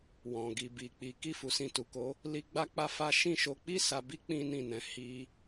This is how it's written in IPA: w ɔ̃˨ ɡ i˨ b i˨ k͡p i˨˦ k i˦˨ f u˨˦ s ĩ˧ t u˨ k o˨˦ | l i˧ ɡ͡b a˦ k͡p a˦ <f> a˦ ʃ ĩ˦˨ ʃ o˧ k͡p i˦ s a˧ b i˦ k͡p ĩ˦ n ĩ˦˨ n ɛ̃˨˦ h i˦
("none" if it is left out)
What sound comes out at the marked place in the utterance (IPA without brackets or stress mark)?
f